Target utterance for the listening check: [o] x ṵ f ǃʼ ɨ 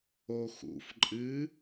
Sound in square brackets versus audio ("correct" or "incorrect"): correct